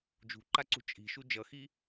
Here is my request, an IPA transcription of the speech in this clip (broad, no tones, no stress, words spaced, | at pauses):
d͡ʒṳǃaǀṳ t͡ʃʼi̤ʃu d͡ʒʌxi